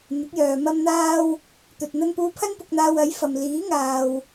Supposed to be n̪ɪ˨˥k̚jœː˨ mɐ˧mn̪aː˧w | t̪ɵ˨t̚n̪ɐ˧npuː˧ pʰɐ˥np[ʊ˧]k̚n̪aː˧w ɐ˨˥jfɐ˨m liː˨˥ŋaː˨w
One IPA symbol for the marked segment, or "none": ʊ˧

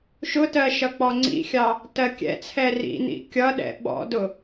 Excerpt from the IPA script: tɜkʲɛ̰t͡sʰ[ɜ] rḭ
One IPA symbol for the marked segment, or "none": ɛ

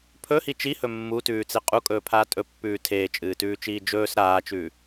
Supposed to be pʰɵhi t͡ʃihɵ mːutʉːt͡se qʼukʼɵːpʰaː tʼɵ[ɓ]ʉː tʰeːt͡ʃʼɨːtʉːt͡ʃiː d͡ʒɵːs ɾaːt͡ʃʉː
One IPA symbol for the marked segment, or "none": pː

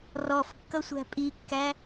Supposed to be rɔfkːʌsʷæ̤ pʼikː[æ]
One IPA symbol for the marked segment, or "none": æ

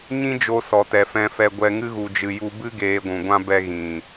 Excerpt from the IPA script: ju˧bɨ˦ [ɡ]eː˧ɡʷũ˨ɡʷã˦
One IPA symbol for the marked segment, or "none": ɡ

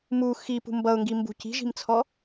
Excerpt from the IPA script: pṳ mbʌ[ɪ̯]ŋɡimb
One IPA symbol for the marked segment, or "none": ʊ̯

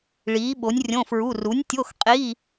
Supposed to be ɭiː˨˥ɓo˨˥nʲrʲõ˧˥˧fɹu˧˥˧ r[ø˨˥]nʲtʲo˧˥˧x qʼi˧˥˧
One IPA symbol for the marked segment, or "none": u˨˥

